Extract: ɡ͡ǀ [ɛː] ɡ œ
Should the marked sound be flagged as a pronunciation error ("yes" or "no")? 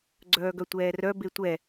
yes